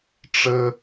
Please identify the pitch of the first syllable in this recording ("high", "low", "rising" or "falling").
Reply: high